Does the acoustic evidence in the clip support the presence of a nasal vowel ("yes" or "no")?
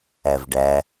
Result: no